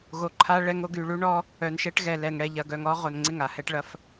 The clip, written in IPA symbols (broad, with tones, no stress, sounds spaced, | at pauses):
ɣ o˨ ǃʰ a˦ ɭ ɛ˦ ŋ o˦ ɡ y˨ ɭ u˦ ɳ ɔ˦ | œ˨ n ʃ ɛ˦ ʈ ɣ ɛ˨ l ɛ˨ ŋ ɽ ɛ˨ ʎ ɐ˨ ɡ œ˨ ŋ ɔ˦ ʁ o˨ n ŋ͡ǀ ɪ˦˨ ŋ a˨ h ɛ˦ ʈ ɭ ɐ˦ f